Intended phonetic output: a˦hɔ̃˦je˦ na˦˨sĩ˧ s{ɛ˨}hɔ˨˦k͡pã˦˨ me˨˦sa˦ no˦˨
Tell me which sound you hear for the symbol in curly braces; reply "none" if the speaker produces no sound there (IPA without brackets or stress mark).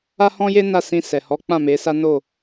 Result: ɛ˨